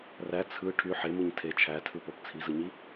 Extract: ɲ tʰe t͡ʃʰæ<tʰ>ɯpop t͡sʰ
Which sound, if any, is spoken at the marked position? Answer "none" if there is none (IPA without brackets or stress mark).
tʰ